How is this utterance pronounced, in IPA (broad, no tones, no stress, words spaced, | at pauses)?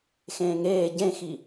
xẽːŋeː ɟẽxi